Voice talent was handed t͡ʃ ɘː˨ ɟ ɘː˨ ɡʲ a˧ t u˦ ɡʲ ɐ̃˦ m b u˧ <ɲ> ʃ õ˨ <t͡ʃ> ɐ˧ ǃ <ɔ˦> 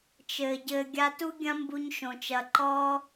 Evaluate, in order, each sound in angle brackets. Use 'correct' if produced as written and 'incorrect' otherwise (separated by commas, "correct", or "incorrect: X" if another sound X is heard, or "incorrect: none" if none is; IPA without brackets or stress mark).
correct, correct, correct